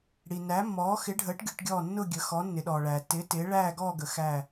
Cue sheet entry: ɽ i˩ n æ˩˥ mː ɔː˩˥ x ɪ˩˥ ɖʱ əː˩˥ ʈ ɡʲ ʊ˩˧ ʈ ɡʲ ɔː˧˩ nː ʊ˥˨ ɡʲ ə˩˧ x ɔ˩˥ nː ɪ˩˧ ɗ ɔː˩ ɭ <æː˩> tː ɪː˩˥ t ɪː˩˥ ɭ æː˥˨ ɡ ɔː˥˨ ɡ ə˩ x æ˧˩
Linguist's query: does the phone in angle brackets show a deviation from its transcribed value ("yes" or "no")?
no